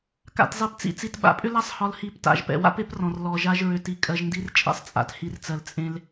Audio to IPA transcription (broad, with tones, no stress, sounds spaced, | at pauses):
k a̰˨ t zˤ i˨ p t͡s ḭ˨ t͡s i˨ t ɓ a̰˨˦ pʼ ʏ˦ l a˦ sˤ h ɒ˨ l h i˨˦ p t a̰˨ ʒ p ɛ̰˨ w a̰˦ p e˦ p r ɔ̃˨ r l ɔ˨ ʒ a˦ ʒ ɹ ʏ˨ t i˨ kʼ ɜ˨ ʒ n d i˦ r t͡ʃʼ ɛ̰˦ sˤ t͡sʼ a̰˨ t h i˨ r t͡s ɜ˨ l t͡sʼ ẽ˦ l